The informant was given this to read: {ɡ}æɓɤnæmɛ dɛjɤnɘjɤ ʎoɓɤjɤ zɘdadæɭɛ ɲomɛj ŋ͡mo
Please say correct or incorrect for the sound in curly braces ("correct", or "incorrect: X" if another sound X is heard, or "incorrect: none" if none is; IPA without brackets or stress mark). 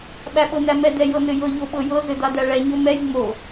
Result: incorrect: ɓ